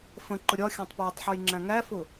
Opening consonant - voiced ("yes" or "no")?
no